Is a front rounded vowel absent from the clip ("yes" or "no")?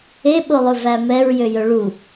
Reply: no